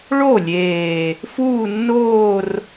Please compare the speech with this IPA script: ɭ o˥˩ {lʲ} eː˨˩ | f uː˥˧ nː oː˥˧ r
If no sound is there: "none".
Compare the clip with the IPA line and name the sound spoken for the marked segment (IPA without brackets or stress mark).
lʲ